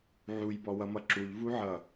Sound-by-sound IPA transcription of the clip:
ʕ u j b ɔ w ʌ m ʌ ǁ u ʎ v u ʕ ʌ

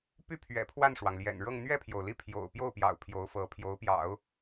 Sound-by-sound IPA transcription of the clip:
p y˥˩ pʰ ɥ ɛ̰˨˩ pʰ w a˥˩ n ʂ w ɑ˩ ŋ l j ɛ̰˨˩ n ɻ ɤ˥˧ ŋ n̪ ɥ ɛ˥˩ pʰ j o˩ ʊ̯ l i˥˩ pʰ j o̰˨˩ ʊ̯ p j o˥˩ ʊ̯ p j ɑ̰˨˩ ʊ̯ pʰ j o˧˥ ʊ̯ f ɤ˧˥ pʰ j o˧˥ ʊ̯ p j ɑ̰˨˩˦ ʊ̯

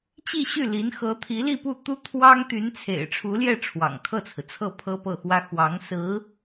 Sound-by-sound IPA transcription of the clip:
t͡ɕ i˥˧ ɕ y˥˩ l i˧˥ n x ɤ˧˥ t̪ʰ i˧˥ l i˥˧ p u˥˩ t̪ u˥ t̪ʰ w ɑ˥ ŋ t̪ y˧˥ n t͡sʰ ḛ˨˩ ɪ̯ ʈ͡ʂʰ u˧˥ l j ɛ˥˩ ʈ͡ʂʰ w ɑ̰˨˩ ŋ kʰ ɤ˥˩ t͡sʰ ɹ̩˩ t͡sʰ ɤ˥˩ pʰ ɤ˥ p ɤ˥˩ x w ä˥ x w ɑ˧˥ ŋ s ɹ̩˧˥

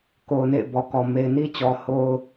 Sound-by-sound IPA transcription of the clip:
k o˨ ʊ̯ n ḛ˦˨ ɪ̯ b ɔ˨ k ɔ˨ m e˨ ɪ̯ n i˦ t͡ɕ ɔ˨ h o˦ ʊ̯

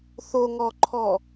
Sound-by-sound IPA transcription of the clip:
θ o ŋ ɔ ǃʰ ɔ

